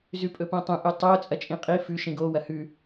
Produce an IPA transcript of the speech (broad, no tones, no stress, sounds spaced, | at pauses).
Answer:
z ʉ pʼ ɵ p õ tˤ ũ ʔ u tˤ o t͡sʼ ɐ t͡ʃʼ ĩ qʼ i f ʉ ʃ ĩ ɡ o w ɐ h ʉ